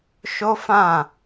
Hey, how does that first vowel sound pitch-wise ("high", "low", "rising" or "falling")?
high